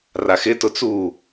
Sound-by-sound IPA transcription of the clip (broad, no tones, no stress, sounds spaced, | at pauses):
r a x ɪ t ʊ t͡s u